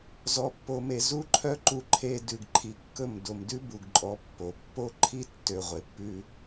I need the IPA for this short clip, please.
zɔ˨pːo˨me˨ zu˧ǃʰœ˧ǃu˨ ǃʰe˧ dʉ˨ɡǃʰi˨kːɵ˦˨m do˨mdʉ˦bu˨ɡǃʼɔ˨˦ pːo˨ pːo˦ ǃʰi˦tːø˨ ʁʷe˨pːʉ˦

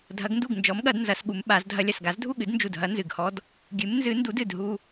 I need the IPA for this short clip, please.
dʱɐ˨˦ɡndu˥˩ɡnd͡ʒɔ˨˦mɠɐ˨˩˦d nzɐ˨˩˦sɠu˨˦mɓa˨˩˦zdʱɐ˦ lʲɐ˨˩sɡa˨˩˦zdʱu˥˩ɠɨ˨˩˦d nd͡ʒu˨˩dɦɐ˨˦ nzɨ˨˩ɡhɔ˦d | ɡʲɨ˨˦mnzɨ˨˦ndu˨˦d ɨ˥˩dɦu˦

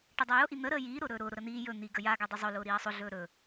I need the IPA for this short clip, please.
ʈədˤajʊ ʔin̪ə ɾəːjiː ɾʊːɾɵːɾʊː ɾʊɾən̪iː jɵ n̪iɡə jaɡa dˤɵzˤɵ lʊːɾiːɐ̯sˤʊ ɮɵːɾɵ

